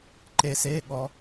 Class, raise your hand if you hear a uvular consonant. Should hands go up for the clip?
no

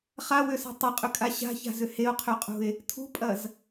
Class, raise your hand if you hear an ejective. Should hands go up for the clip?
yes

